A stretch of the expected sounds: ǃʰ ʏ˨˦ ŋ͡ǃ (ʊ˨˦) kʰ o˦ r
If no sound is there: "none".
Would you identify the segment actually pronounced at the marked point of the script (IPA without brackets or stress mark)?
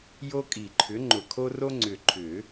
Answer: ʊ˨˩